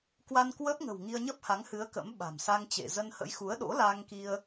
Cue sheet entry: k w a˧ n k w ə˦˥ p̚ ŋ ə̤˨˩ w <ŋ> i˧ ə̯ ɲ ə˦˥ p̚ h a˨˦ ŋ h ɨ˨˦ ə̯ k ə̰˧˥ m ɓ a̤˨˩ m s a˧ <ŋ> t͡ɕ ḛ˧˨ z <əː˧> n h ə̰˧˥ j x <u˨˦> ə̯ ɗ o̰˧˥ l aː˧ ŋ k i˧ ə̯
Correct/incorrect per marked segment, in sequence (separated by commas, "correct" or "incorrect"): correct, correct, incorrect, correct